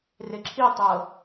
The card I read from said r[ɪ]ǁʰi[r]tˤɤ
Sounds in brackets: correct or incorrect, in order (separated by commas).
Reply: correct, incorrect